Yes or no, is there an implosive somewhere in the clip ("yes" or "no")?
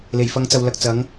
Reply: no